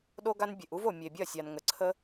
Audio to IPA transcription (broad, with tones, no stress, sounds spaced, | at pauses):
ɗ o˦ ɡ a˦ n bʲ e˨ ʔ u˦ v o˨ mʲ e˨ bʲ ɐ˦˨ sʲ a˨ n ŋ ə˨ ǀʰ ə˦